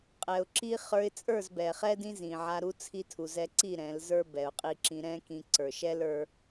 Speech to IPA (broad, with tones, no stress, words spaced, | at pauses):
qʼɛ˨ʊ̯ǁi˦ χə˞˧ɪ̯t͡sʼə˞˦˨zbɛ˨ χɛ˦dĩ˦zĩ˨ʕa˧ ɾu˦ t͡sʰi˦tʰu˧zɛ˦ ǀi˦˨ ɾɛ̃˨˦lzə˞˦bɛ˨ʊ̯ qʼi˧ǁĩ˧ ɾɛ̃˦kĩ˧ ǀə˞˨ʃɛ˦l ə˞˦